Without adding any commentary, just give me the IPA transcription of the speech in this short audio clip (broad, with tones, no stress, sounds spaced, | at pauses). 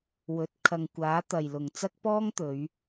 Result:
w ɵ˨˥ t̚ kʰ ɐ˨ ŋ kʷ aː˨˥ t̪ ɐ˨ j l ʊ˨ ŋ t͡s ɐ˥ k̚ p ɔː˥ ŋ t̪ ɵ˨˧ ɥ